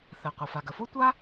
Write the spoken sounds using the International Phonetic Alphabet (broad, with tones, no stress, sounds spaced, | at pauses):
θ ɛ˩ qʷ ɜ˩ f a˩ ɡ ə˩ f o˥ tʷ a˥